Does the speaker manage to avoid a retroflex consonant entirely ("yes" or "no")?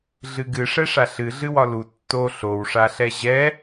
no